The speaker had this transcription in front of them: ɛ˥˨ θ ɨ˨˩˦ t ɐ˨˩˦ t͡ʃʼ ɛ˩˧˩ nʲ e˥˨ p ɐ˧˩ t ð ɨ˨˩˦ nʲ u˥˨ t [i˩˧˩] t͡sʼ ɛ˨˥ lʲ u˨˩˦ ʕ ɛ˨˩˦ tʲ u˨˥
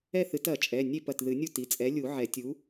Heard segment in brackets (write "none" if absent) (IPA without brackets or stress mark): i˩˧˩